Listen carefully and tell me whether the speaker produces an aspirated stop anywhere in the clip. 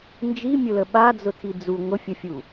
yes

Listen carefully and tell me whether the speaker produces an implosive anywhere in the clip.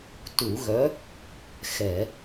no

